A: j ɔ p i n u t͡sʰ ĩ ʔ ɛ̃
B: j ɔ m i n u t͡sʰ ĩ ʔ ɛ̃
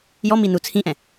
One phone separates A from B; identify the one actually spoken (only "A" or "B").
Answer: B